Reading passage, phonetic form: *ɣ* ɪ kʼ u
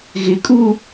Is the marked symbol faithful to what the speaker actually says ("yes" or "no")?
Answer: yes